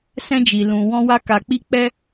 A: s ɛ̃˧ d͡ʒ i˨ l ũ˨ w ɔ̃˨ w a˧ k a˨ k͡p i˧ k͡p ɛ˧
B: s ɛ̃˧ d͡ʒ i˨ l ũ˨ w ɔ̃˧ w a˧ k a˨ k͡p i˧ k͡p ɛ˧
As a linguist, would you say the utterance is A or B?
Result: B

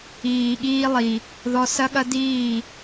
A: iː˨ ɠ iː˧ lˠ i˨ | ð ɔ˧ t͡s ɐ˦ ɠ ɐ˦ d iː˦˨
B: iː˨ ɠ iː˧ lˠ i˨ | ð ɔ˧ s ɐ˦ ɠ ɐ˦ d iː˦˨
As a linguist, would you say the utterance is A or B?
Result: B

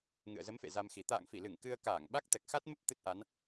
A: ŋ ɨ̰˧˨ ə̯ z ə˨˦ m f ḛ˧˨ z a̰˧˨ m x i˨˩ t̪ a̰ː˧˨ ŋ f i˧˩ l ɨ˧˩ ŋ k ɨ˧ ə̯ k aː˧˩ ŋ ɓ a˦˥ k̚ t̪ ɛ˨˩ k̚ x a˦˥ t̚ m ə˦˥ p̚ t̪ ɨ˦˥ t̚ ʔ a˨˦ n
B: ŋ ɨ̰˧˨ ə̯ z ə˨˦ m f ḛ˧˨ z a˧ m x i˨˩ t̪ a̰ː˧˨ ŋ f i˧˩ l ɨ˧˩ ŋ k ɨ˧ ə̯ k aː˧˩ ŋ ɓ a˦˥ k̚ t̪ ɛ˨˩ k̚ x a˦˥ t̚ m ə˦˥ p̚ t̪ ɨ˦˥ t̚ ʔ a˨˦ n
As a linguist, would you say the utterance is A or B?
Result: B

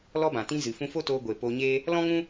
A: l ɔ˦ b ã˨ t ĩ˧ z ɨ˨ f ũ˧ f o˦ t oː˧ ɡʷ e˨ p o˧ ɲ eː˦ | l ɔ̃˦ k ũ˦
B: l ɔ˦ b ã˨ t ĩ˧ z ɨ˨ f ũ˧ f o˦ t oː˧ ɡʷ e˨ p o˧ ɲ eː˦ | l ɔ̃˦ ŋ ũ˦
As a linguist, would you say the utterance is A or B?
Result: B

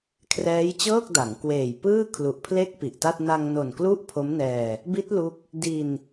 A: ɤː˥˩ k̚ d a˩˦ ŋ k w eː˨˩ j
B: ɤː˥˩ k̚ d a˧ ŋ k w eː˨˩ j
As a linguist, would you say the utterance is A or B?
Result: A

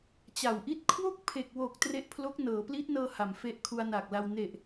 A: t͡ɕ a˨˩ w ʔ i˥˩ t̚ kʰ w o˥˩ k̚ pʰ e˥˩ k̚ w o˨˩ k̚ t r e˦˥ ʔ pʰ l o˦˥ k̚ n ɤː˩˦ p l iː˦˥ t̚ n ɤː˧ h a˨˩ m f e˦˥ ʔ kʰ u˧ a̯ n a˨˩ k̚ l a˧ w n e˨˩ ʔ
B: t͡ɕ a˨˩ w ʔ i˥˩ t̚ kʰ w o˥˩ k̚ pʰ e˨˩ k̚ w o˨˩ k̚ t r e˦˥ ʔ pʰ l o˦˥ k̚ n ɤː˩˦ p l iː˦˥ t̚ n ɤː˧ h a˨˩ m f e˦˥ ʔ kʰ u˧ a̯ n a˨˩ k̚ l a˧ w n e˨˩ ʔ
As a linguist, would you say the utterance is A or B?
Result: B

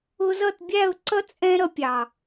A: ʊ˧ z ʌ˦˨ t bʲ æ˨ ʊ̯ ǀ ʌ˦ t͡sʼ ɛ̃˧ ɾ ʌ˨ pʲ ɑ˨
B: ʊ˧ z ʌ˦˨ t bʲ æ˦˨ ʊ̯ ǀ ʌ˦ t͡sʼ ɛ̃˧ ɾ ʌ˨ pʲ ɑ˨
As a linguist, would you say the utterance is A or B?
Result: B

